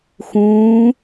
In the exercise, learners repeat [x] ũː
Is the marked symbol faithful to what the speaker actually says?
yes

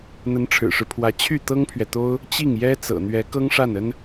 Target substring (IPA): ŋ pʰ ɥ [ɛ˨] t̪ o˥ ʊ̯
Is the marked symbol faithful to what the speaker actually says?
yes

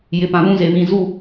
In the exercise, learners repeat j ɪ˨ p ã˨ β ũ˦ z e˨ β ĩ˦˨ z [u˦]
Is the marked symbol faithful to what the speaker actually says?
no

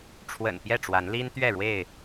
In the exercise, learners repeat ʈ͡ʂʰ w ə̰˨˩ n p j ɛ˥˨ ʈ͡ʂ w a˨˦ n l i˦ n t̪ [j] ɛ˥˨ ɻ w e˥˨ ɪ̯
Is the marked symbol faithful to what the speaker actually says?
no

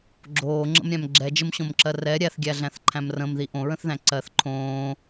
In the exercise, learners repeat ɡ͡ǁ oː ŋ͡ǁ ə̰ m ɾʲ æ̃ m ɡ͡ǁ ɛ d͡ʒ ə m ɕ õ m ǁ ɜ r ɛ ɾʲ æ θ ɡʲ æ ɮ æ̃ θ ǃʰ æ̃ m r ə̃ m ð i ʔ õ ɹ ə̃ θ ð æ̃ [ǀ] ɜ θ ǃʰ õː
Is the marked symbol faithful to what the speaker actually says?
yes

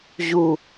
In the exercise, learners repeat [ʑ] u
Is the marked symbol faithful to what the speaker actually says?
yes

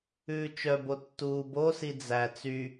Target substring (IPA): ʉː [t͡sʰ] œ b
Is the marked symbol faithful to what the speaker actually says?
no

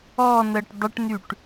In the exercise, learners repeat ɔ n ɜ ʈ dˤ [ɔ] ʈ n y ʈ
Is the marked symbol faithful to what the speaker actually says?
no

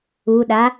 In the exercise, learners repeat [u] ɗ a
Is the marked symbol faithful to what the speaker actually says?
yes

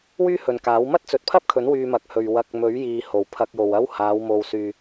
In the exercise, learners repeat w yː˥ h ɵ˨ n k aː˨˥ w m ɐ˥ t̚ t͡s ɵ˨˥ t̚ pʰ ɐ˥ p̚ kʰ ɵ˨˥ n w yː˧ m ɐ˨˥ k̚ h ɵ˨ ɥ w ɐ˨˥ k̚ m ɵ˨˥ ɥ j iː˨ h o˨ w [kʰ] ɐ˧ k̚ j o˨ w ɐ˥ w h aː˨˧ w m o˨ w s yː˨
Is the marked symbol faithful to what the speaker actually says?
no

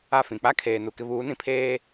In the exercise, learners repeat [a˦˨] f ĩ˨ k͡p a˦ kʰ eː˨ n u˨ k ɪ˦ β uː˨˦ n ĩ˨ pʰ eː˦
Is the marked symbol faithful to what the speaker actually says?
yes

